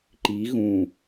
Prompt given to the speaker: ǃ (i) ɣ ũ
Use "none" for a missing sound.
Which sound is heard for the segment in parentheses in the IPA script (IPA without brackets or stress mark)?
i